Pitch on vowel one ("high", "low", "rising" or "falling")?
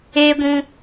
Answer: high